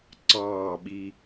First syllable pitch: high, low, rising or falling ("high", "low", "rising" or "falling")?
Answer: falling